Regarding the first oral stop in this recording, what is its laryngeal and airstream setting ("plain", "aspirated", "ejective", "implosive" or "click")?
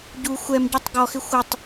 plain